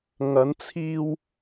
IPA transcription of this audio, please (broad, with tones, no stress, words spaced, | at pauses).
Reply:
ŋɐ˨˧nt͡sʰiː˧w